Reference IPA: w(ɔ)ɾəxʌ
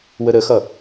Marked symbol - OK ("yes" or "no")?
no